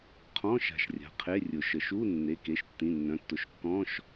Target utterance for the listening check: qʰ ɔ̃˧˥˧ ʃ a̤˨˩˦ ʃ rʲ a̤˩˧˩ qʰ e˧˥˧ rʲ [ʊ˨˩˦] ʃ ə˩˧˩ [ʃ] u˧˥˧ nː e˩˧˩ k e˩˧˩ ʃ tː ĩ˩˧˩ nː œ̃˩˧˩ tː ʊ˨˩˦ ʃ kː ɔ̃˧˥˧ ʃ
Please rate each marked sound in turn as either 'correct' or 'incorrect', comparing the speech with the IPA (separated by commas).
correct, correct